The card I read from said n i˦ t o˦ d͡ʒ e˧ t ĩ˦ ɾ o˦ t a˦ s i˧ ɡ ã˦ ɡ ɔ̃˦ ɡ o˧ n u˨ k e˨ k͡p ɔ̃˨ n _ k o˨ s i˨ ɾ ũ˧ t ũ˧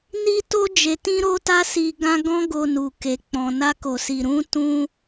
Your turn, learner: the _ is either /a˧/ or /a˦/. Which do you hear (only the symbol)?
a˧